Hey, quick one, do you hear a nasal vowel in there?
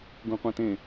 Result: yes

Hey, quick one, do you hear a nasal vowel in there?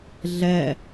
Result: no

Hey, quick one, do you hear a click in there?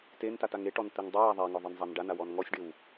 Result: no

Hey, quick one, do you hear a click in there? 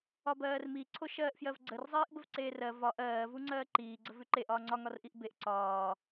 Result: yes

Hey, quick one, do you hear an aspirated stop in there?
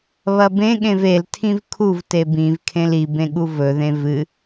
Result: yes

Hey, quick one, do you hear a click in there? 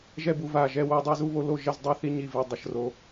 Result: no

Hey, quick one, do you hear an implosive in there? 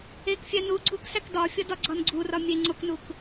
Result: no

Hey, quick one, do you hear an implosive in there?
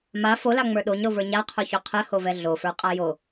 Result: yes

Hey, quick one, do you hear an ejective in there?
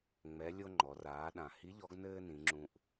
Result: no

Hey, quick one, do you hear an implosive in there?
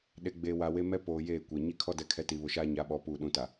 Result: yes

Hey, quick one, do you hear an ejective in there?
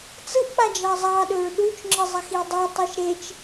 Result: no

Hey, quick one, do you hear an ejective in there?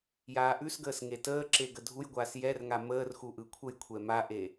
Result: no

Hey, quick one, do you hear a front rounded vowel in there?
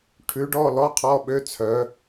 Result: yes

